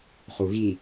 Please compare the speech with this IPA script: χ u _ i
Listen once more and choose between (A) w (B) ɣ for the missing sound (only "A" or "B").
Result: B